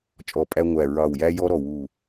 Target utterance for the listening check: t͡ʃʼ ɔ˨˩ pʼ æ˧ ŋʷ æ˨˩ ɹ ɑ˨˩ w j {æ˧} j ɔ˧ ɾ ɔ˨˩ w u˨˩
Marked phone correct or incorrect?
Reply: correct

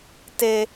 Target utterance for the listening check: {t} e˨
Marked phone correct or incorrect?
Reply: correct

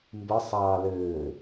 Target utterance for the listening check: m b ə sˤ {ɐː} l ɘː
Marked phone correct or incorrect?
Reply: incorrect: ɑː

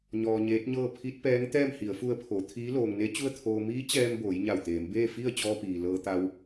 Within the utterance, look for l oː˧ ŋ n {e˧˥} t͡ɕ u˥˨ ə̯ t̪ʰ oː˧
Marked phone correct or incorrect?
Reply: correct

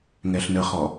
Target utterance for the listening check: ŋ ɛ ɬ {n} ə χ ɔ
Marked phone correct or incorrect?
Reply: correct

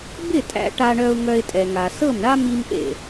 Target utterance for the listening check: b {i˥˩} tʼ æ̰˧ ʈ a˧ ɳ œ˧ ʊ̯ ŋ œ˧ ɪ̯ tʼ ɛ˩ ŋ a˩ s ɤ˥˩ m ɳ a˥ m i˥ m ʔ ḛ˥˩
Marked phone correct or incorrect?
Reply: incorrect: ɪ˥˩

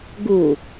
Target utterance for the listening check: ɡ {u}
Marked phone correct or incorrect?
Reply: correct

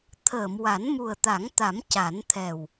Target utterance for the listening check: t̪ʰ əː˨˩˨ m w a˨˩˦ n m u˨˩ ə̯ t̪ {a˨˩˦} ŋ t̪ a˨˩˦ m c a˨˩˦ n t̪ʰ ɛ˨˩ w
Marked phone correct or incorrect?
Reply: correct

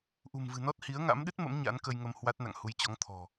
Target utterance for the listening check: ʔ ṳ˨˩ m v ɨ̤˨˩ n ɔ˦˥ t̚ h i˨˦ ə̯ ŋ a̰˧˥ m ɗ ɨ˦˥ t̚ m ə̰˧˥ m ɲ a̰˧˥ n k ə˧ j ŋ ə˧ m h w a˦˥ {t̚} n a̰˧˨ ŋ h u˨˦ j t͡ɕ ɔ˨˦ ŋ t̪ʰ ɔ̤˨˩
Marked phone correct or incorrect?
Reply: correct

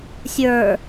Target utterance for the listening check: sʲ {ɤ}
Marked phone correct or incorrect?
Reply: incorrect: ə˞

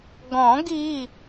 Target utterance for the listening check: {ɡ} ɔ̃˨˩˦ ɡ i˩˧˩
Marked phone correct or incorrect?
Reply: correct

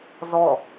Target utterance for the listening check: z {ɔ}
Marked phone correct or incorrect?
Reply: correct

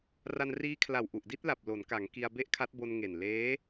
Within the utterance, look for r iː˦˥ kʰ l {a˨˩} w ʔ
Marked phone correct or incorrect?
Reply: correct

